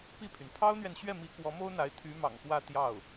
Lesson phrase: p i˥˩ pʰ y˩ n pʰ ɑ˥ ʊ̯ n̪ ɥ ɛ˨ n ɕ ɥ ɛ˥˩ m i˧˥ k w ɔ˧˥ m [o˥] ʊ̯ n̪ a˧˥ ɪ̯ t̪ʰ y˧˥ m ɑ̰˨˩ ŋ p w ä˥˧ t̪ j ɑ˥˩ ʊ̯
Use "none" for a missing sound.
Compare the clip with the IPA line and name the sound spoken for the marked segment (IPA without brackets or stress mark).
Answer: o˥